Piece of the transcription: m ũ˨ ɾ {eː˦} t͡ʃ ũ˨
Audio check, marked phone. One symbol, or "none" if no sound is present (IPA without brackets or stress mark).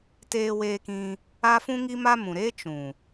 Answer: eː˦